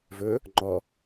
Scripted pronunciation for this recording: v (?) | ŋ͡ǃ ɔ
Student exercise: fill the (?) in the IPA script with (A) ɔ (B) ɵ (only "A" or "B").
B